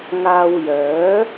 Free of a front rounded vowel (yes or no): no